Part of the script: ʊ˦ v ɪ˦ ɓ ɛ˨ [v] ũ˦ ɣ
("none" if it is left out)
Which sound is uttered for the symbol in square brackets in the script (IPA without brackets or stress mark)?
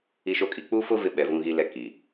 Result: v